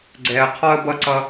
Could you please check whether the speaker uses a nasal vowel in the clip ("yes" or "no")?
no